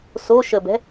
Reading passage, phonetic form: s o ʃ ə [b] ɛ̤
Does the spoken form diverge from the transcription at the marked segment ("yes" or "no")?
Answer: no